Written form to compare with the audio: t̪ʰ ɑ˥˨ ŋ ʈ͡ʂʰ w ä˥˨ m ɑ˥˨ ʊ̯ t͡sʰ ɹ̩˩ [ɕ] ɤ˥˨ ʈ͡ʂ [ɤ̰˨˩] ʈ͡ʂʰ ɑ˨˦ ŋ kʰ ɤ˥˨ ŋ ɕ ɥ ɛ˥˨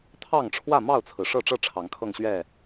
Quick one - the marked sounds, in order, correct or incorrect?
incorrect: ʂ, incorrect: ɤ˥˨

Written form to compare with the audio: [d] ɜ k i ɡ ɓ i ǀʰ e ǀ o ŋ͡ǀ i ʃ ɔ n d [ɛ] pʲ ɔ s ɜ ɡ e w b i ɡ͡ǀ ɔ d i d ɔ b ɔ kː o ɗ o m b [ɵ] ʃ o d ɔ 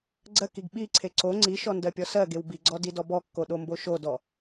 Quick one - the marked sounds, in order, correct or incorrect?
incorrect: ɡ͡ǀ, incorrect: ɜ, incorrect: o

